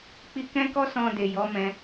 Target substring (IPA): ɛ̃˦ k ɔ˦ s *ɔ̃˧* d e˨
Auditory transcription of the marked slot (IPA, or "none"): ɔ̃˧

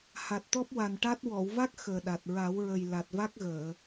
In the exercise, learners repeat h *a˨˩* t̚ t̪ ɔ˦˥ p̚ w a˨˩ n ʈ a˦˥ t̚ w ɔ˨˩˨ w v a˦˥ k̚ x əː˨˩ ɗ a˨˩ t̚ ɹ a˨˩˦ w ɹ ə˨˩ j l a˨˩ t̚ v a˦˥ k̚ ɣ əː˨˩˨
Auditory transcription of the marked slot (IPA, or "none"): a˨˩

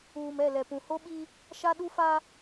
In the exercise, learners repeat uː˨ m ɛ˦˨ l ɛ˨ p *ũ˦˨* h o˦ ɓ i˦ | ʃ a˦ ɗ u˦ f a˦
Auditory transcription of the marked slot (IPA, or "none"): ũ˨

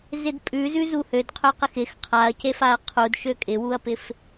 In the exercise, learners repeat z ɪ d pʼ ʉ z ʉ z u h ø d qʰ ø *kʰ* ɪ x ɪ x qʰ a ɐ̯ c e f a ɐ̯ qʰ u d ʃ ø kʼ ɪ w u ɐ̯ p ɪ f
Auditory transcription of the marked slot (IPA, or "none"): q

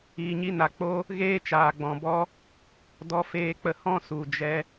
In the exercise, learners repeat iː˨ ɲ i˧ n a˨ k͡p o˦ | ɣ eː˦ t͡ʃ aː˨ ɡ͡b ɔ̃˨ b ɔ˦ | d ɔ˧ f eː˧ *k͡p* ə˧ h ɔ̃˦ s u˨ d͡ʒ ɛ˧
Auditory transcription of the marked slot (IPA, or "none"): k͡p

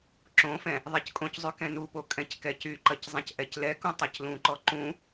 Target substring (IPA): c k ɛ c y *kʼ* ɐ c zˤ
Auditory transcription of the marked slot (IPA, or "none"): ǃ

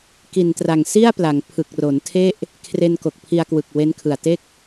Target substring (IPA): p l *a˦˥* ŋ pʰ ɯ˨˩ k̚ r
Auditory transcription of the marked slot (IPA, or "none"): a˩˦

